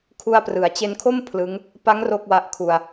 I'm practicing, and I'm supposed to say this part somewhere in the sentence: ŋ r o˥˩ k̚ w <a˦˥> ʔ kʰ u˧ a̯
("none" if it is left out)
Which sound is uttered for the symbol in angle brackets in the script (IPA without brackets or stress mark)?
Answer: a˦˥